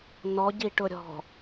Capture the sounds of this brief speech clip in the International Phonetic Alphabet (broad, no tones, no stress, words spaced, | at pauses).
nɔɟiʈʊɾʲɔ̤